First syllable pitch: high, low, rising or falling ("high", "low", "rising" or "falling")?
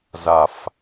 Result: low